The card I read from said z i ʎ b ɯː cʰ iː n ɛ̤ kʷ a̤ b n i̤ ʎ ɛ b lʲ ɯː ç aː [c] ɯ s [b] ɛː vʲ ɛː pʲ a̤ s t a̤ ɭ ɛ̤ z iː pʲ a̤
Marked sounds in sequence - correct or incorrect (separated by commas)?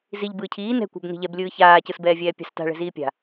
correct, correct